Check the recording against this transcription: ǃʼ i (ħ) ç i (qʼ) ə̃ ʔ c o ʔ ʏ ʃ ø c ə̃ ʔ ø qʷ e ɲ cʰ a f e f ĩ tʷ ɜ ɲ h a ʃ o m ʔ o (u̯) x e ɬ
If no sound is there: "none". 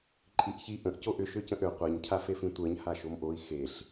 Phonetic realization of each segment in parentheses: ʔ, ʔ, i̯

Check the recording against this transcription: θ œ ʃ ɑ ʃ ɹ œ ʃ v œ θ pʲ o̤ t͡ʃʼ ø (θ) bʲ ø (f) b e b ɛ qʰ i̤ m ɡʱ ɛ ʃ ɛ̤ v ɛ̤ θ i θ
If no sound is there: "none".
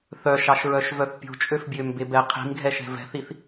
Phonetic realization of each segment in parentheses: f, m

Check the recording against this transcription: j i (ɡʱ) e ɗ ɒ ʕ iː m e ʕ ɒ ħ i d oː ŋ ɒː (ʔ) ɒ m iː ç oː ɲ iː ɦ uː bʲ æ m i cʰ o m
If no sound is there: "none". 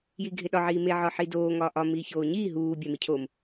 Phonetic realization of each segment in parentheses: ɡʱ, ʔ

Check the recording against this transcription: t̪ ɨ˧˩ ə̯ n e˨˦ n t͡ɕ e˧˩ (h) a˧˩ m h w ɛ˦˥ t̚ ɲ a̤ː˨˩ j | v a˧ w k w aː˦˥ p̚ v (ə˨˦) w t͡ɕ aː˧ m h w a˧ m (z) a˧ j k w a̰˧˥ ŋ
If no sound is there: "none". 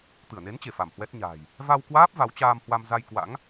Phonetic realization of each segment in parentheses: f, a˨˦, z

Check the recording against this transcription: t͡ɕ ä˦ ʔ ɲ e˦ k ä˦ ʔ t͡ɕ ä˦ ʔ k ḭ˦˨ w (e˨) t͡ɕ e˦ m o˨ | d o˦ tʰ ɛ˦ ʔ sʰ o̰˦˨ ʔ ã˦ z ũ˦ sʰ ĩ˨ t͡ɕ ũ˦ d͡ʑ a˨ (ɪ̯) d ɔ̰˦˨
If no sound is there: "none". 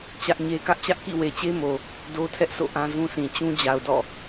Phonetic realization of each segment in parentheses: e˨, ʊ̯

